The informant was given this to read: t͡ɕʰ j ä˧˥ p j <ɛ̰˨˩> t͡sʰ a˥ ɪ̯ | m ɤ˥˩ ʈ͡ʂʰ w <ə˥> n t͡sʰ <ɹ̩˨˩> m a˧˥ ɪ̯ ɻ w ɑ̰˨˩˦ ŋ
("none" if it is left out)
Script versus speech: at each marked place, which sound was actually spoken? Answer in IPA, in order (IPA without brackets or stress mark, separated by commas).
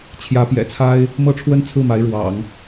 ɛ̰˨˩, ə˥, ɹ̩˥˩